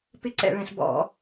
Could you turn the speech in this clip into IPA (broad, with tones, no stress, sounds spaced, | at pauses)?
p ɪ˥ ǀ ɛ̰˧˩˧ ɭ ɛ̃˧˩˧ ɬ b ɔ̰˧˩˧